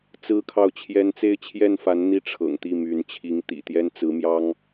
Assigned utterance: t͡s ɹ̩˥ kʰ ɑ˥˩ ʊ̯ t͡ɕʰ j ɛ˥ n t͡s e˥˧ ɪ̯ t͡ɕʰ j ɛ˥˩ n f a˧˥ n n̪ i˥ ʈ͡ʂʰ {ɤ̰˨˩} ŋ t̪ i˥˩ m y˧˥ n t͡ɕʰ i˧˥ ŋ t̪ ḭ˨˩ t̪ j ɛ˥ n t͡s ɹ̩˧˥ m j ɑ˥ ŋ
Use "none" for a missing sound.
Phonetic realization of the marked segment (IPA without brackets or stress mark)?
ɤ̰˨˩